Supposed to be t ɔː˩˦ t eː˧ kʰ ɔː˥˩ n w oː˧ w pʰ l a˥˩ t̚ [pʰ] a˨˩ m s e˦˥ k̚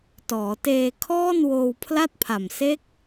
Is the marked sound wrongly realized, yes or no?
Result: no